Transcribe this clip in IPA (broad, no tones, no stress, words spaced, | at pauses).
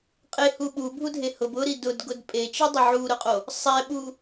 qʼehu ɓubʱudʱe hʊb ʊɾi dʊdɡʊd pʼet͡ʃidˤʊ ʕuɾʊqʼo | sˤɛɓu